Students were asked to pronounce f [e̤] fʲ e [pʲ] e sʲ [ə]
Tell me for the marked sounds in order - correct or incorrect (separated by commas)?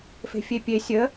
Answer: correct, correct, correct